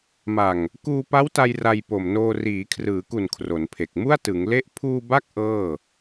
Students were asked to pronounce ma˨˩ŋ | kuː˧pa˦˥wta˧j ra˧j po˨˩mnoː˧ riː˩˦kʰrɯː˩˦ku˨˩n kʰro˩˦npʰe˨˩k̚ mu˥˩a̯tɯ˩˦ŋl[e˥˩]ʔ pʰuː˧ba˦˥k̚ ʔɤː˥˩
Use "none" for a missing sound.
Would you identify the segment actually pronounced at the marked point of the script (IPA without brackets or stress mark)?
e˥˩